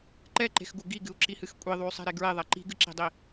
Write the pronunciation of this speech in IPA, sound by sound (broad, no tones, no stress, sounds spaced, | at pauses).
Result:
ǃ ɛ ǃ e̤ x ɡ u ɡ i ɡ ɨ u̯ ǁ i h ɨ x kʷʼ i ðˤ u y̯ sˤ e̤ ɾ e ɡ ɹ e ðˤ ɛ ǃ i̤ ɡ ɨ ǁ i̤ dˤ i